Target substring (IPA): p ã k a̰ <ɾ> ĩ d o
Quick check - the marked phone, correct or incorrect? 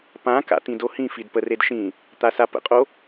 incorrect